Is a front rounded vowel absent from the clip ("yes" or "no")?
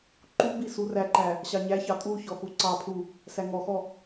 yes